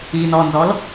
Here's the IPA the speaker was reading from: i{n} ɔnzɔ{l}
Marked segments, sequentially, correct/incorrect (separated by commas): correct, correct